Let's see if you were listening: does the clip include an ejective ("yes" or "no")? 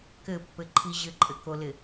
yes